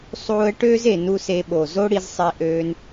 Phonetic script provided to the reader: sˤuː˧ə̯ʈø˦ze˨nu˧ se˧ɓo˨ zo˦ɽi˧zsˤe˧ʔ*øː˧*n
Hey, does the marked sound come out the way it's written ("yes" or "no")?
yes